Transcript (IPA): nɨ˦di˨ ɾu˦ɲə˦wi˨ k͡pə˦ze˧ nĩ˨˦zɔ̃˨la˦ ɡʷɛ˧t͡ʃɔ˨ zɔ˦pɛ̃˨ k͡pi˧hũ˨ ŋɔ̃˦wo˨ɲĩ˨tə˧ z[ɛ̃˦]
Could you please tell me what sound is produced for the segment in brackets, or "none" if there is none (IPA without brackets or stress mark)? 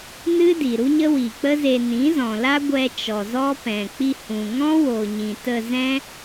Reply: ɛ̃˦